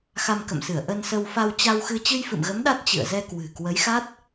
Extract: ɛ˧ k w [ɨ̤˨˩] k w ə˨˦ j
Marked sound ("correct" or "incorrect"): correct